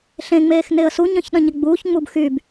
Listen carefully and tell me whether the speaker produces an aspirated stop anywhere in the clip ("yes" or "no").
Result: no